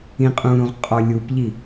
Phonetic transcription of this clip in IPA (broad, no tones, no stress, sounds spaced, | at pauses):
ĩ qʼ ũ ɾ ũ ʁ qʼ ɔ lʲ u p ʎ i